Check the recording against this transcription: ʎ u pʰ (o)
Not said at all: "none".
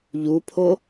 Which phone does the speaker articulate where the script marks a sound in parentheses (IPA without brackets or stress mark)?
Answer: o